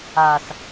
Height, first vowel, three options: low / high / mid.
low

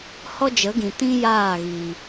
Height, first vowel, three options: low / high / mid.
mid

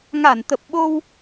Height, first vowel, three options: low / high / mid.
low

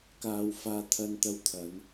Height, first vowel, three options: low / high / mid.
low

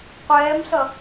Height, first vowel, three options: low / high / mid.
mid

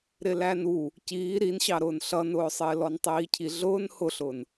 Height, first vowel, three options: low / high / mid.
high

